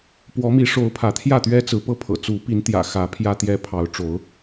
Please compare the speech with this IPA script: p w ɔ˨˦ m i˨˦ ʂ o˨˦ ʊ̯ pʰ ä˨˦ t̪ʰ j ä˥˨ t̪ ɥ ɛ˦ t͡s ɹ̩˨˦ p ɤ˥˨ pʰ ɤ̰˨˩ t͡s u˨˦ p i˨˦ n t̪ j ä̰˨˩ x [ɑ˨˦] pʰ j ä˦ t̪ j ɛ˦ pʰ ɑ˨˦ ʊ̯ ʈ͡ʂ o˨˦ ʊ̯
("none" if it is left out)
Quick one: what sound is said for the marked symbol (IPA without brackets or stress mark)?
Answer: ä˨˦